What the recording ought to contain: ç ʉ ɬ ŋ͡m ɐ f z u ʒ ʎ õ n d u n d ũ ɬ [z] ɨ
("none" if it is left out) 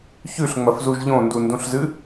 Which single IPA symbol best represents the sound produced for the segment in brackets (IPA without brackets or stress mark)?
z